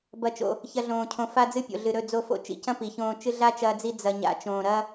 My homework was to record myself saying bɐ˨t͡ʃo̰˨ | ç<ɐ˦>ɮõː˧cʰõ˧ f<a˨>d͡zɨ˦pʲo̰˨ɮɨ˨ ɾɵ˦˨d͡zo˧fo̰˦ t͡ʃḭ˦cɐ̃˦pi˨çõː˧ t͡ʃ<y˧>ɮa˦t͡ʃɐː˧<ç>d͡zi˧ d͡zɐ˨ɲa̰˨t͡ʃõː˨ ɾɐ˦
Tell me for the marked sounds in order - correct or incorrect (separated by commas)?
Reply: correct, incorrect, incorrect, incorrect